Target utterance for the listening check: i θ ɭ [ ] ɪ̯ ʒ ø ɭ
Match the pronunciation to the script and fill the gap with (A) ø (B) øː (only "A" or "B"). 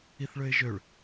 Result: A